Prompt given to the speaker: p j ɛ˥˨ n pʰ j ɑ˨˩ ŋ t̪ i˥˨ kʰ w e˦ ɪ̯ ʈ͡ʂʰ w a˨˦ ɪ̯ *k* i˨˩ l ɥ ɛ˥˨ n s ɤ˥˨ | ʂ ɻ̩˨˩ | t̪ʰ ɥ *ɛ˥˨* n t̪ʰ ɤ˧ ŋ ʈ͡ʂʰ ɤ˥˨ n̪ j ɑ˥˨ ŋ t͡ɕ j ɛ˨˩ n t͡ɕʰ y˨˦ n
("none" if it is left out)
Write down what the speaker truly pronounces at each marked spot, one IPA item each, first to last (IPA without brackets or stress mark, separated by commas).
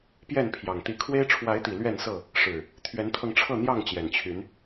t̪, ɛ˨˦